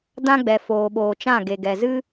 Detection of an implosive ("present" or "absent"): present